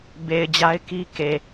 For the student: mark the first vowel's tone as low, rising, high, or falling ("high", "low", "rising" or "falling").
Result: low